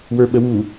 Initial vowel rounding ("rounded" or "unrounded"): unrounded